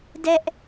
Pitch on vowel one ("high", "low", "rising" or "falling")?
high